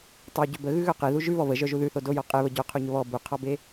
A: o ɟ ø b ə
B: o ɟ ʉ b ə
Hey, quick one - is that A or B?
A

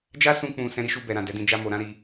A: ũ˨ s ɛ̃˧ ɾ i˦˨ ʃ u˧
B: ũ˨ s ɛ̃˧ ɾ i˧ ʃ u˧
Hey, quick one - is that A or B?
B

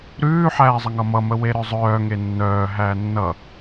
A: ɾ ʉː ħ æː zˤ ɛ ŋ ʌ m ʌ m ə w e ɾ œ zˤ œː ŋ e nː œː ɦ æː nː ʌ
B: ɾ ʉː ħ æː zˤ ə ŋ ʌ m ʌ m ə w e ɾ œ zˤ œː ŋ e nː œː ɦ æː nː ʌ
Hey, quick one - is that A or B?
B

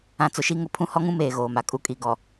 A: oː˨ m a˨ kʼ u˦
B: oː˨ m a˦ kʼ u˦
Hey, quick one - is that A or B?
A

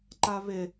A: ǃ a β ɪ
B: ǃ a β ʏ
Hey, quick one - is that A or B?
A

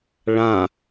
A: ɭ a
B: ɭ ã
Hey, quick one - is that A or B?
B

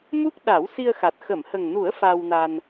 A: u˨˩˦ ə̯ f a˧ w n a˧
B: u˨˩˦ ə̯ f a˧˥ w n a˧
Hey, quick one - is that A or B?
A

